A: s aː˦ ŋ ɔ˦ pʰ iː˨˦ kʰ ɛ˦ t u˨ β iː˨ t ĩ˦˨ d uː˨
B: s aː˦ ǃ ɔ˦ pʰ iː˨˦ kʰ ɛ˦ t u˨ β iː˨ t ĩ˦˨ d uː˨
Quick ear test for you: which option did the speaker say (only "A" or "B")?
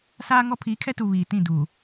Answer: A